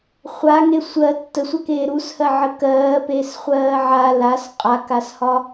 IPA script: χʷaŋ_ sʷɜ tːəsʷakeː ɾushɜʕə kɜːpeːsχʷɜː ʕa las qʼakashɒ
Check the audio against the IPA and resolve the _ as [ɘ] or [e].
e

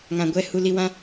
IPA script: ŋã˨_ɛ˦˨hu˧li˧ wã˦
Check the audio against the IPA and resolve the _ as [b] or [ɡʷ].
ɡʷ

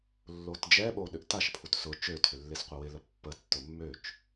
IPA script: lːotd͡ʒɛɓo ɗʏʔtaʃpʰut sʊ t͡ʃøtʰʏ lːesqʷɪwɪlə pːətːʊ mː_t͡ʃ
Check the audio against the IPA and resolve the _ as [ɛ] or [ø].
ø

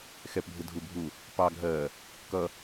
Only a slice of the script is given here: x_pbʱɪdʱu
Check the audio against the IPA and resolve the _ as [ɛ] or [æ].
ɛ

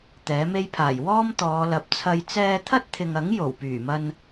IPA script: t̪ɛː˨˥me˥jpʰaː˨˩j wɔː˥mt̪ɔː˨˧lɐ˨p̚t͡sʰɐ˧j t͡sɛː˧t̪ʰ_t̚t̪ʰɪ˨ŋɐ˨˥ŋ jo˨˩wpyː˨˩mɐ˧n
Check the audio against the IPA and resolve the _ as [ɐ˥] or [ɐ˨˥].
ɐ˥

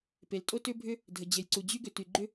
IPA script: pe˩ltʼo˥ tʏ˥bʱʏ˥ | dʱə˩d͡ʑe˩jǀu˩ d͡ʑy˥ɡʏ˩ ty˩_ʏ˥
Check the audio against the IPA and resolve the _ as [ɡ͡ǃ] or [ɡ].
ɡ͡ǃ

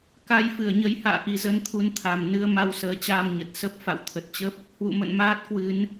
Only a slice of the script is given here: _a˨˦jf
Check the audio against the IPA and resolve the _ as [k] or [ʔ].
k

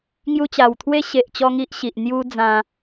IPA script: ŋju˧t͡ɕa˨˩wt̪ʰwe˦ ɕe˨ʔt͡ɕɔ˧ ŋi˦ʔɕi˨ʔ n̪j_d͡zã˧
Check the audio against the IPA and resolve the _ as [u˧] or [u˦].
u˦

